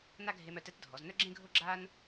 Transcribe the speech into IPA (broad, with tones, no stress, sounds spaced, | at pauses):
n a˥ ɡʱ e˧ m œ˧ t ɛ˧˥ t dʱ ɔ˩˧ z n œ˥ ɡ͡ǁ ẽ˥ ɡʱ o˥ ɡ͡ǁ a˥ n